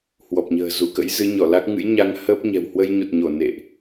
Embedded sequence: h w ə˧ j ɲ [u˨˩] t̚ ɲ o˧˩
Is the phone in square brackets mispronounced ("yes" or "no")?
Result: no